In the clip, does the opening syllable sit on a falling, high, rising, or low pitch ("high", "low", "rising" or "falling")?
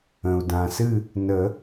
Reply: low